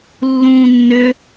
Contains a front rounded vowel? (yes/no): yes